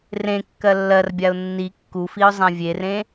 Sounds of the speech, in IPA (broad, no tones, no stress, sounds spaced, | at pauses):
r ẽ kː ɜ lː ɜ r bʲ a ʊ̯ nː i kː u f i ʊ̯ zˤ ã vʲ e r ẽ